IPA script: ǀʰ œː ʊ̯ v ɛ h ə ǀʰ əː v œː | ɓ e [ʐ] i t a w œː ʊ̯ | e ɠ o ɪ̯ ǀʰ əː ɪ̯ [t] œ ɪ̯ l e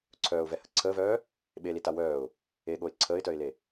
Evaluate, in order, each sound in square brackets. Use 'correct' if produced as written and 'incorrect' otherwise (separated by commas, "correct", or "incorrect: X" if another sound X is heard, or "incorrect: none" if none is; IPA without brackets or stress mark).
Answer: incorrect: l, correct